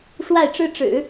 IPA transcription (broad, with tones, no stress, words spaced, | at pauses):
ʂwa˥˩ɪ̯ʈ͡ʂɻ̩˥ʈ͡ʂɻ̩˨˩˦